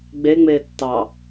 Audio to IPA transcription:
ɡ͡b e ŋ͡m eː tː ɑ

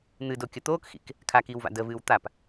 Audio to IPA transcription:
n̪ ɨ d o kʲ ə t̪ oː k x ḭ k | kʰ a k iː w v a̰ d ə v ɨː w t̪ a p

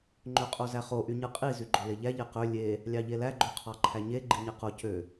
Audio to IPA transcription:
ŋ͡ǃ ø qʼ o z æ χ o ʔ y ɲ ɯ qʼ i z y ɡ͡ǃ o l e ʎ æ ʎ e q ø lʲ e | lʲ ɑ ʎ e l æ ɡ͡ǃ ø qʰ ɑ ǃʰ æ ɲ e ɡ͡ǃ i ɲ e q o c ø

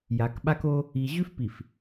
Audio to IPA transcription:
j a˨ k ɓ a˦ k o˦ | i˨ ʑ ʉ˦ f p i˨ f

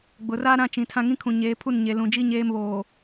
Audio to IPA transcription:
ɡ͡b ʊ˨ r aː˦ ɾ ã˦ t͡ʃ ĩ˨ tʰ ã˦ ŋ ĩ˦ kʰ ũ˨ ɲ eː˨˦ pʰ u˦˨ n ɲ e˨ l ũ˨ d͡ʒ i˦ ɲ eː˦ m β oː˨

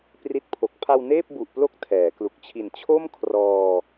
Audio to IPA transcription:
p r i˦˥ t̚ pʰ o˨˩ k̚ pʰ a˧ w n eː˥˩ p̚ b u˨˩ ʔ p l o˥˩ k̚ tʰ ɛː˩˦ k l u˨˩ k̚ t͡ɕʰ i˨˩ n t͡ɕʰ o˥˩ m kʰ r ɔː˧

